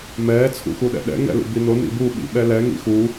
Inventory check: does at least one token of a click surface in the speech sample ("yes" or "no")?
no